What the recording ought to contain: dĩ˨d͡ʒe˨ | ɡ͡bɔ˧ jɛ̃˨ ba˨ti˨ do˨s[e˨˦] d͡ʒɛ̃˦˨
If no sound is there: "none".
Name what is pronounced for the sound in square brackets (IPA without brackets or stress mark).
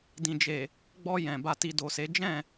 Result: e˨˦